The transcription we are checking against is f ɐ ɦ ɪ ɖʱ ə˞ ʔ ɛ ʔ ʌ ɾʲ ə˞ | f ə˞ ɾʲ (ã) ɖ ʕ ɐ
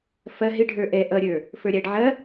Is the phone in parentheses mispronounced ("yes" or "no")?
yes